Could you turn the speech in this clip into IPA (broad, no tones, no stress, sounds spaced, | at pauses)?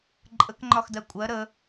ǃʼ ə k ŋ͡ǃ ɒ x d ɜ kʷʼ ɜ ɾ ə